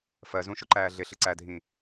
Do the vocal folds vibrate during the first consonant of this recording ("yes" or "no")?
no